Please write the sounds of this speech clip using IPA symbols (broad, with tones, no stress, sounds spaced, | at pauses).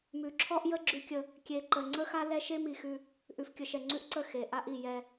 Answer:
m ʉ˨ ǁʰ ɔ˦ ʔ j ə˦ ɡ͡ǁ ʉ˦ kʲ ə˦ | kʲ e˨ ǃ ə˨ ŋ͡ǀ ə˦ x a˦ l ɛ˦ ʃ e˦ m i˨ x ʉ˦ | ʔ ʉ˨ f kʲ ə˨ ʃ ɛ˨ ŋ͡ǀ ʉ˦ ʔ ǀ ə˦˨ x e˨ ʔ a˦ ʔ i˨ j ɛ˦